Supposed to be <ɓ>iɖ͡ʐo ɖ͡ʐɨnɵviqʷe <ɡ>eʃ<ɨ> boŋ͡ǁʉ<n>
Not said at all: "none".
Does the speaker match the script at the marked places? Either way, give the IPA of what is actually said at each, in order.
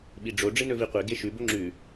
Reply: ɓ, ɡ, ʉ, none

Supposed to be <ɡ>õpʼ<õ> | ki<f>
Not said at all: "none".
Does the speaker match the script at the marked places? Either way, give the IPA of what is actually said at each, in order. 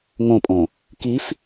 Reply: ŋ, õ, f

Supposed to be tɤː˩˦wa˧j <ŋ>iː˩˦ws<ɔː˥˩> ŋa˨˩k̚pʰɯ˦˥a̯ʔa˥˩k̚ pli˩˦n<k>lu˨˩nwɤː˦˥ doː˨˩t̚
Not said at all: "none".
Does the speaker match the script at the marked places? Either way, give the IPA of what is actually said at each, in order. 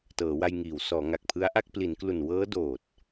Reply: ŋ, ɔː˩˦, k

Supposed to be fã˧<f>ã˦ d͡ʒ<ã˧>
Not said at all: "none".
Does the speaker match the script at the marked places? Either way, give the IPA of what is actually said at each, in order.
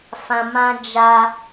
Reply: m, a˧

